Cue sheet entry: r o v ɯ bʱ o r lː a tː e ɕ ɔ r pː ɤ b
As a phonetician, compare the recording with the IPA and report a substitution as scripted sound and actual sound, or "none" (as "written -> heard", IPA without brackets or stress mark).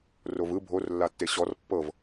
b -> v